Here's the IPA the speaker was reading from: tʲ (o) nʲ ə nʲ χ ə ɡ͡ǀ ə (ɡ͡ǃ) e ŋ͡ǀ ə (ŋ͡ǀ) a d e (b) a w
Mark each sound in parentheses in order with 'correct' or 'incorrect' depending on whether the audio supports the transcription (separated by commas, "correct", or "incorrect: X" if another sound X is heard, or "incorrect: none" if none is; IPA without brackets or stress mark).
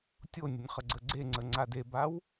correct, incorrect: ɡ͡ǀ, correct, correct